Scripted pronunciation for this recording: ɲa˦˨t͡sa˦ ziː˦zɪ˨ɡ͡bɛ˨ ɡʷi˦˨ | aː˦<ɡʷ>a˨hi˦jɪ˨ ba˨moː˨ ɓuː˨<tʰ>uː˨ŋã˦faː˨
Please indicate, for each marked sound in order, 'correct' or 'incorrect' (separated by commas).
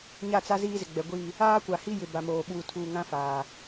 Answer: incorrect, correct